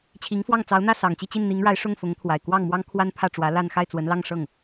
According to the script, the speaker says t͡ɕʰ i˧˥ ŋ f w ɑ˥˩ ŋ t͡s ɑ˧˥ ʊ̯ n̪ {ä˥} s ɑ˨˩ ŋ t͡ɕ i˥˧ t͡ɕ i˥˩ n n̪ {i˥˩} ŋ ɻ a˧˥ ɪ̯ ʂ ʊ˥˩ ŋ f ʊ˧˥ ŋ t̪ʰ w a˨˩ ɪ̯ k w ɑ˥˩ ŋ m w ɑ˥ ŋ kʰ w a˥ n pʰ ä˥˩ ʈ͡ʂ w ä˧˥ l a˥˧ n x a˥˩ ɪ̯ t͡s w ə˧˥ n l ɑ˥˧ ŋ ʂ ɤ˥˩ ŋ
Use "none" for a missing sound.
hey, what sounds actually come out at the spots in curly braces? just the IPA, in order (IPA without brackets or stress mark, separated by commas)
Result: ä˥˩, i˧˥